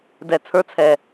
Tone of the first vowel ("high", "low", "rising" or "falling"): low